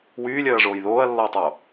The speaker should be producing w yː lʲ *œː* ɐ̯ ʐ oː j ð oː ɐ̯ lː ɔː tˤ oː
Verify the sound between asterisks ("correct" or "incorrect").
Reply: correct